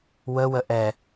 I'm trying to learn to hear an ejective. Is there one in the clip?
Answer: no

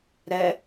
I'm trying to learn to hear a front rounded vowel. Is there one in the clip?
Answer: no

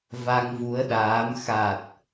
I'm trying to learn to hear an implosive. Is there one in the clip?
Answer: yes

